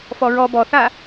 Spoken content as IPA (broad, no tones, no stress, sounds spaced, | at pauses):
f ɔ ɹ ɔ b ɔ θ a